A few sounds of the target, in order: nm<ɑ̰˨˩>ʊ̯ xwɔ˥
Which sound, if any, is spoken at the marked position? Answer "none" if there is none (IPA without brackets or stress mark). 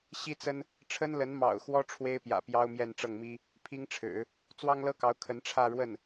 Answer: ɑ̰˨˩